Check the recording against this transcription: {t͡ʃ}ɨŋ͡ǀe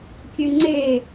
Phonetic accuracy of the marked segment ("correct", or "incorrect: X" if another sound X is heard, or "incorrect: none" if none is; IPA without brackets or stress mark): incorrect: kʲ